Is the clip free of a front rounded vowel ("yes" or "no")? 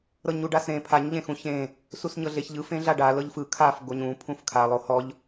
yes